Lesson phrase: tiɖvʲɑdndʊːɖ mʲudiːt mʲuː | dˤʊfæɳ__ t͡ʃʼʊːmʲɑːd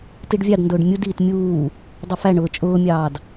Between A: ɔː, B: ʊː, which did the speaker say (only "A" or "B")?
B